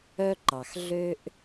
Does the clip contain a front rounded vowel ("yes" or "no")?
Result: yes